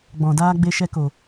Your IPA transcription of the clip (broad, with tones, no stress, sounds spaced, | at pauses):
ɡ͡b ɔ̃˨ d aː˧ ɡ͡b e˧ ʃ ɛ˧ k o˨